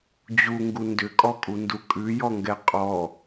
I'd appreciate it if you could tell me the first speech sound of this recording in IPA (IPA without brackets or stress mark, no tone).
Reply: d͡ʑ